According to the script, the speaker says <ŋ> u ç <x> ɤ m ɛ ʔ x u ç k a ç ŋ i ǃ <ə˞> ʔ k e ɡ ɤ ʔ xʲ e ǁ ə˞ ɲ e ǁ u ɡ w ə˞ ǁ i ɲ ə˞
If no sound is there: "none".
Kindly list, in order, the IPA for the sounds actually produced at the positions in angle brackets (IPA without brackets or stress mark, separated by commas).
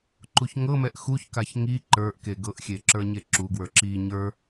ǃ, ŋ, ə˞